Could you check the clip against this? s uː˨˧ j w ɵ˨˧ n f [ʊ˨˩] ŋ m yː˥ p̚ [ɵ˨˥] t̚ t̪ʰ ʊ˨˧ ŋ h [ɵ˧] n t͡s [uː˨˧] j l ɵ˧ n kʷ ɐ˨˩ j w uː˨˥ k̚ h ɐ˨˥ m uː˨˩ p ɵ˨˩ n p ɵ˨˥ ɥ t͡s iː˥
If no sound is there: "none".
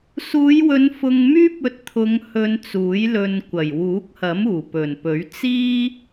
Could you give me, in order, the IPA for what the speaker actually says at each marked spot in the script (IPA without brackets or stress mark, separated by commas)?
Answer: ʊ˧, ɵ˧, ɵ˧, uː˨˥